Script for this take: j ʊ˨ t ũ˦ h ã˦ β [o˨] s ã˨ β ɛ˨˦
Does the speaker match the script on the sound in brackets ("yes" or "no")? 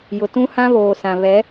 no